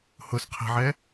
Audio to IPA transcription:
h ʊ s qʰ ɛ̤ ʕ ɛ

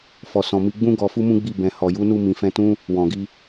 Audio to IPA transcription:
f ɔ˨ s ɔ̃˨ m i˧ ɡ͡b ũ˦ ɡ ɔ˧ f u˦ m ũ˦ ɡ͡b i˦˨ b ɛ̃˨ h ɔ˨ j u˨˦ n u˧ m ĩ˨ f ɛ̃˧ t ũ˦ | w ɔ̃˨ ɡ i˧

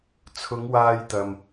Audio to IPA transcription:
t͡sʰ ʊ˨˧ ŋ w aː˧ j t̪ ɐ˨ m

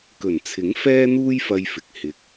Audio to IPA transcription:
k ɵ˨˩ n t͡sʰ ɪ˨˥ ŋ f ɛː˥ n̪ uː˥ j f ɐ˧ j f ɪ˨ k̚ h ɪ˨ k̚

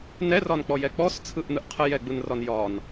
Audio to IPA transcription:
n ɛ r ɒ n k͡p ɔ j ɛ k͡p ɔ s t͡sʰ ɯ ʔ n̪ ɯ ʔ qʰ ə j ɛ ɡ͡b ɯ n r ɒ n j ɒ n

